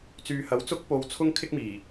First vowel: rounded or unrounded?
rounded